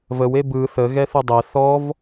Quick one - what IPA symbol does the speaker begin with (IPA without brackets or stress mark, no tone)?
v